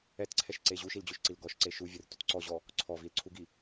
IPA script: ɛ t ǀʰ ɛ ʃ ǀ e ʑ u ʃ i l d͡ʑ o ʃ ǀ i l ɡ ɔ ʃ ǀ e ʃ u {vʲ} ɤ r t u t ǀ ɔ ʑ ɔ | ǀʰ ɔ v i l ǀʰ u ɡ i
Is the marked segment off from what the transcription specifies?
no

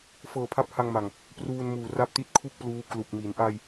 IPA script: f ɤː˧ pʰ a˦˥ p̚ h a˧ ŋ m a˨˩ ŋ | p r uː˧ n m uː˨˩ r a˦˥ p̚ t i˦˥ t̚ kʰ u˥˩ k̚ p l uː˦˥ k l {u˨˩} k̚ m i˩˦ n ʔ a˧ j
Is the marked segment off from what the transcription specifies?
no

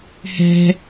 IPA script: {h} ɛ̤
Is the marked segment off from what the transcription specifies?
no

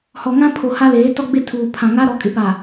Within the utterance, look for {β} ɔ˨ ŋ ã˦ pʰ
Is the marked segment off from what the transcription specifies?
yes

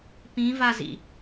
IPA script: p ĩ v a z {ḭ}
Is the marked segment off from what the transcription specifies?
no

